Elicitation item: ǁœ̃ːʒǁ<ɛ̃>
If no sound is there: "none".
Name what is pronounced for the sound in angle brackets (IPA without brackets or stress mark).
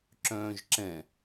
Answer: ɛ̃